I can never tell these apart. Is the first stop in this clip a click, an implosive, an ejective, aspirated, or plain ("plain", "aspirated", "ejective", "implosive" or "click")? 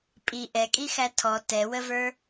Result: ejective